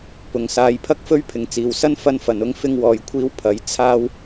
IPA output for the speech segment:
p ʊ˨˩ ŋ s aː˨˧ j pʰ ɐ˥ k̚ f ɵ˥ ɥ pʰ ɪ˨ ŋ t͡s iː˨ w s ɐ˥ n f ɐ˥ n f ɐ˨˧ n ʊ˥ ŋ f ɪ˥ ŋ w ɔː˧ j kʷʰ iː˥ w pʰ ɐ˨˥ j t͡sʰ aː˥ w

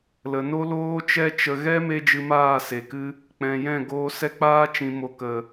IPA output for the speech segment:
l ə˨ n o˦ l oː˦ t͡ʃ ɛ˦ t͡ʃ ə˧ ɣ ɛ˦ m e˧ d͡ʒ ɨ˧ m aː˦˨ s e˨ k ɨ˦ | k͡p ɛ̃˨ j ɛ̃˦˨ ɡ oː˧ s ɛ˧ k͡p aː˧ t͡ʃ ĩ˨ m o˨ k ə˨

